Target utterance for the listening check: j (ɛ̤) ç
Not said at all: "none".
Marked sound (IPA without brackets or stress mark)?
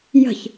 ə̤